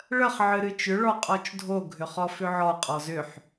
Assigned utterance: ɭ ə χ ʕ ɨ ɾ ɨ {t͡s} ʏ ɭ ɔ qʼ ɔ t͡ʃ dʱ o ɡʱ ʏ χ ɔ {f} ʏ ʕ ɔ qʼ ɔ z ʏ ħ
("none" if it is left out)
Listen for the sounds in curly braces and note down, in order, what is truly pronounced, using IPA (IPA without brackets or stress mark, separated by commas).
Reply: t͡ʃ, f